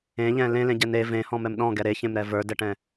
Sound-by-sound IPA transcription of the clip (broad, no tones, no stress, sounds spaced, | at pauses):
ẽ ʎ ɛ̃ l ẽ l ẽ ɟ ɛ n e v ẽ h ɔ̃ m ɛ m ɗ ɔ̃ ɡ ɛ ɾ e ç ẽ m ɾ ɛ v ə˞ d ɛ ʈ ɛ̃